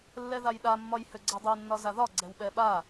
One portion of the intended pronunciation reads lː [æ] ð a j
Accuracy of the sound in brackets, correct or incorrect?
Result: incorrect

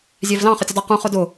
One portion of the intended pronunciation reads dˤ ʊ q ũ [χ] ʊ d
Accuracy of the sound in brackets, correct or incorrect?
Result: correct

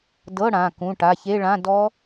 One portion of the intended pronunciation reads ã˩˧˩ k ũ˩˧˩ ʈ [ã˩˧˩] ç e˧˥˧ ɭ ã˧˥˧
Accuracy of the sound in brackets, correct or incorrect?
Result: incorrect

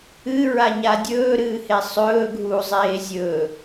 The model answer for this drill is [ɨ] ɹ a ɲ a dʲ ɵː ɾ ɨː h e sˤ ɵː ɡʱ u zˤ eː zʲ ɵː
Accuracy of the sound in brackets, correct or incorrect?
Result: correct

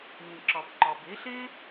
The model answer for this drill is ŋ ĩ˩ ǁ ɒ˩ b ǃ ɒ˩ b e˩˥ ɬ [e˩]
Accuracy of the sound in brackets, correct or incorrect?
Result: incorrect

